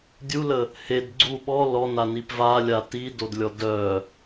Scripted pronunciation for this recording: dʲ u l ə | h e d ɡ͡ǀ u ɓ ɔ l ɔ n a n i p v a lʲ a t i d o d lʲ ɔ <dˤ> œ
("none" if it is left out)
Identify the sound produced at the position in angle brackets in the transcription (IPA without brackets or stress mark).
d